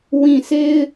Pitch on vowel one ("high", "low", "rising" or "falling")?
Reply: low